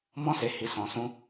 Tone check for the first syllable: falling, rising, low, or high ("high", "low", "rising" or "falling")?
high